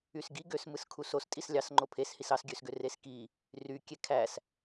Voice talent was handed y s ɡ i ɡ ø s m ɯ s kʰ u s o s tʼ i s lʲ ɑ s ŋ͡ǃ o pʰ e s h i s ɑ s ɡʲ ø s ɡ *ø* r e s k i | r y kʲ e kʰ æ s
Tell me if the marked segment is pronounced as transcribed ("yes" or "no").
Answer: yes